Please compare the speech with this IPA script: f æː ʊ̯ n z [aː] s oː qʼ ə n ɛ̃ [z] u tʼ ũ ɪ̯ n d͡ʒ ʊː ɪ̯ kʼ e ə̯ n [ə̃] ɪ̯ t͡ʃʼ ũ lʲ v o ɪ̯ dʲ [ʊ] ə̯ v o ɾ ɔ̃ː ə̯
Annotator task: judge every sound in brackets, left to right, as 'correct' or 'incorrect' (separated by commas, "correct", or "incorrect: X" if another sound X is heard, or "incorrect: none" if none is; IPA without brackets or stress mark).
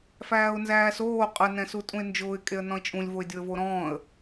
incorrect: æː, incorrect: s, incorrect: ɔ̃, correct